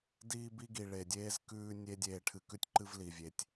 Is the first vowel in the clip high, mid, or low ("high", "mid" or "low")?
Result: high